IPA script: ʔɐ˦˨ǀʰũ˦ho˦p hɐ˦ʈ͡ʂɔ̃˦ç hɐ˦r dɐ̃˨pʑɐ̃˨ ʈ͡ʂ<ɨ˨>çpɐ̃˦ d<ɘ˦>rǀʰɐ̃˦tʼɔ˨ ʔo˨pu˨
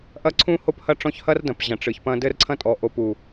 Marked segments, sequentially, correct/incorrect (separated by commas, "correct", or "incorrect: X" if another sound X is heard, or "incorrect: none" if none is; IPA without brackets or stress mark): correct, correct